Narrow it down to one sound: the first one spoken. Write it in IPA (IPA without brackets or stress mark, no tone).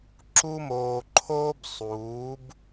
ǁ